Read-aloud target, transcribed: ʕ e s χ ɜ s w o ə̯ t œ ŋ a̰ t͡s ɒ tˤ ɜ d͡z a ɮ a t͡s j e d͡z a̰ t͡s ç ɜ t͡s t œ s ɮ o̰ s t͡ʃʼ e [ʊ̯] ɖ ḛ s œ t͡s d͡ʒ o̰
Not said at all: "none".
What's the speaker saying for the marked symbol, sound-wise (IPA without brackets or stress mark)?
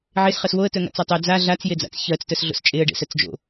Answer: ə̯